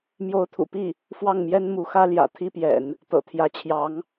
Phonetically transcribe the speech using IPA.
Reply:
m j o˧˥ ʊ̯ t̪ʰ ṵ˨˩ p i˥˩ | f w ɑ˥˩ ŋ m j ɛ˥ n m u˧˥ x ä˥ l j ä̰˨˩ t̪ʰ i˥ p j ɛ̰˨˩˦ n | t̪ ɤ̰˨˩ t̪ʰ j ä˧˥ t͡ɕʰ j ɑ˧˥ ŋ

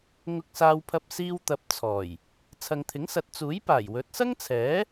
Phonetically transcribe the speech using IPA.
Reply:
ŋ ʊ˧ k̚ s aː˧ w pʰ ɐ˧ p̚ s iː˧ w t̪ ɐ˨˥ p̚ t͡sʰ ɔː˨˩ j | t͡sʰ ɐ˨ ŋ t̪ʰ ɪ˨˥ ŋ s ɐ˨˥ t̚ t͡s uː˨˥ j p aː˨˩ j w ɵ˨˥ t̚ s ɐ˥ ŋ t͡sʰ ɛː˨˥

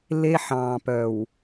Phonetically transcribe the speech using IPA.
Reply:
l e˦ ħ ɑ̃ː˨ p œ˨ w

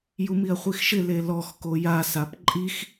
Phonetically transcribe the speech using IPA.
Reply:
j u m i ɐ̯ χʷ i x ʃ ɪ l e l ɔ x k o j a s a p ǃʼ i x

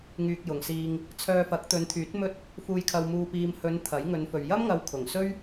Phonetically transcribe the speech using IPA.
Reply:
ŋ yː˧ k̚ j ʊ˨ ŋ s iː˧ ŋ | t͡sʰ œː˧ f ɐ˨˥ k̚ t̪ ɵ˨˧ n t̪ʰ yː˨˥ t̚ m ɵ˥ t̚ | f uː˧ j kʰ ɐ˧ w m uː˧ p iː˧ m h ɵ˨˧ n t̪ʰ ɐ˨˥ j ŋ ɵ˨˧ n f ɵ˨ ɥ j ɐ˥ m ŋ ɐ˨˧ w kʰ ʊ˨˩ ŋ s ɵ˥ ɥ

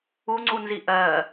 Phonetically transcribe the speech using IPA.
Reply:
u ŋ͡ǀ u n z i ʔ ɜ

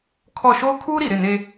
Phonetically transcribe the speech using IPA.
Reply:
kʰ ɔ˦˨ ʃ oː˦ kʰ uː˦ ɾ i˨ ɾ ɪ˦˨ n e˦

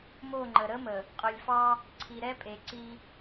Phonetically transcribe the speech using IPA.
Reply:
m o˦˨ ŋ͡ǃ ə˨ ɾ ə˦ m ə˨ | qʼ ɵ˨ lʲ f ɑ˦ | ǀʰ i˨ ɾ ɛ˦ pʼ e˨ ǀ i˦

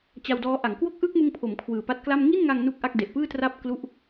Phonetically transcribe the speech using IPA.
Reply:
t͡ɕ a˧ w d ɔː˦˥ ʔ a˩˦ ŋ k w o˥˩ k̚ ʔ ɯː˥˩ k̚ m ɯ˧ ŋ pʰ o˩˦ m kʰ w ɯː˨˩ p a˦˥ t̚ k l a˥˩ m ŋ i˥˩ n ŋ a˧ ŋ n u˥˩ k̚ ʔ a˥˩ k̚ d e˨˩ ʔ p ɯː˥˩ t r a˥˩ p̚ k l u˥˩ ʔ

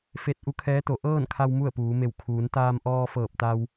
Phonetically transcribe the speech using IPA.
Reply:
f e˧ t̚ ʔ u˧˥ kʰ ɛː˧˥ t̪ o˩˧ ʔ ɤː˥˨ n kʰ a˧ w m u˥˨ ə̯ p uː˩˧ m e˧˩ w kʰ uː˩˧ n t̪ aː˧ m ʔ ɔː˧ f ɤː˧˩ p̚ t̪ a˧ w

